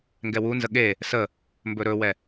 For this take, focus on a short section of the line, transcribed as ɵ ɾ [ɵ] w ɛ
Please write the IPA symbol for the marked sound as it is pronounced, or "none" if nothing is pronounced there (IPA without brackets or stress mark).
ɵ